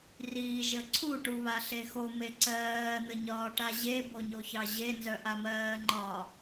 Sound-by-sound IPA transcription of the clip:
riːʒəǀʰu ʈuβaɬexo meǀɜː n̪əɲɒːʈaʑe boɲoçɑʑe nzœʔamɜːŋ͡ǃɒ

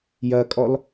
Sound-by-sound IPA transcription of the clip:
jɐkʼɔl

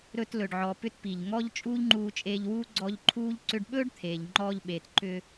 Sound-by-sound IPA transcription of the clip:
ɾɵ˧tlɵ˨ɖʕɔ˨pʏ˧t pi˨ʎŋɔ˦ʎ t͡ʃʼuː˦ʎŋ͡ǃuː˧t͡ʃʼeː˧ʎwuː˦ ɡ͡ǀɔ˧ʎǃʰuː˦ʎ ǀʏ˧ɖɓɵː˦ɖt̪ʰeː˨ʎ ŋ͡ǃɔː˧ʎɓeː˨tǃʏ˧

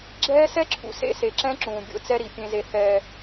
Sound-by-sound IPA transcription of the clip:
ɡ͡ǁɛː˦ sɛ˦ǁʰṵ˨sḛ˦ se˨ǁɛ̃˦ǁũː˨ bʲo̰˦t͡sɛ˦ ɾi˨ pʲẽ˦ze˦ θɛː˦

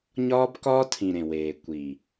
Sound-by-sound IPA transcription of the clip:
ɲɒː˦bkɒː˦tʰĩ˨ɾẽ˨ weː˨ kʷi˨

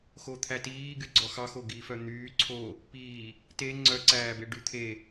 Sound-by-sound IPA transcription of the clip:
xot̪ʰætiː ɡyɡ͡ǀɔxɑxo ɡifœn̪yː ǀʰo | piː | te ŋ͡ǀœǀæːbe ɖyt̪ʰe

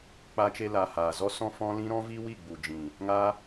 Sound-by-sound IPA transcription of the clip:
k͡pa˧t͡ʃe˧laː˨ haː˨ zɔ˦sɔ̃˦fɔ̃˦lĩ˦ ɾɔ̃˦vi˦ wi˦˨ɡ͡bu˨d͡ʒĩ˨ | ŋaː˦

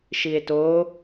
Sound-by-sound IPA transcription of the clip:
ʃie̯to

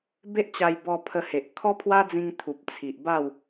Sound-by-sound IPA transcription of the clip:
be˦ʔt͡ɕa˧j bɔ˧pʰə˧he˨ʔ kʰɔ˦pʰwa˦d͡zĩ˧ŋ t̪ʰu˨p̚t͡sʰi˨ʔba˥˧w

